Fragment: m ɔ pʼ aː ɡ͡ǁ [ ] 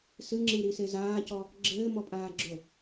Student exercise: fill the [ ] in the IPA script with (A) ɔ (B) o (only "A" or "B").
B